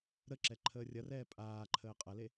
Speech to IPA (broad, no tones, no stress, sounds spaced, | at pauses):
ɾ ə ǁ ɛ ǃʰ əː rʲ ɐ r ɛː pʼ aː ǃʰ əː qʼ ɐ l e